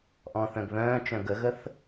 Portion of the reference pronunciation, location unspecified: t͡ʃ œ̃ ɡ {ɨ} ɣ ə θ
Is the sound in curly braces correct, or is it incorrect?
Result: incorrect